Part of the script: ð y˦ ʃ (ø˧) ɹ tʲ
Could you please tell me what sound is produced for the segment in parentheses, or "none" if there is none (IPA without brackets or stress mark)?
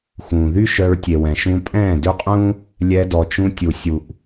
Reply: œ˧